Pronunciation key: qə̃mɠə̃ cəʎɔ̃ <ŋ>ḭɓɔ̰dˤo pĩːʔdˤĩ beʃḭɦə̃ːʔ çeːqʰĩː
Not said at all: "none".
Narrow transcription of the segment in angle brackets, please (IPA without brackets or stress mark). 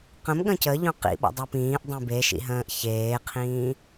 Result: q